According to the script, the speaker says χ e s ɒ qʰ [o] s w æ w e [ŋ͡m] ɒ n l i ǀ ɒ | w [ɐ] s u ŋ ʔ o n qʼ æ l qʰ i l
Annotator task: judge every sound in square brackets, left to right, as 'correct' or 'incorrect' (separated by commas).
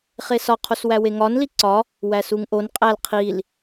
correct, incorrect, incorrect